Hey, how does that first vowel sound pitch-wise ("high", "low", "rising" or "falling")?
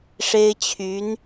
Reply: high